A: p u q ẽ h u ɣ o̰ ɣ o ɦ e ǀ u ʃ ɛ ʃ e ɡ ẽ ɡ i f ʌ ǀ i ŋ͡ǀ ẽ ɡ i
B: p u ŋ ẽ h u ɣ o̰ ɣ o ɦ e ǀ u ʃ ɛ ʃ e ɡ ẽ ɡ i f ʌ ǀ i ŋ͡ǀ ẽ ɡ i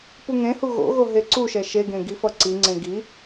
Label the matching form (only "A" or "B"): B